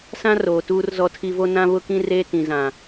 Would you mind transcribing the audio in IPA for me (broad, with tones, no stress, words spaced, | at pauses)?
sã˦roː˨ tuː˦rzɔ˦tʰi˦ vo˦nã˦βʊ˦kĩ˦ reː˦tĩ˨zã˨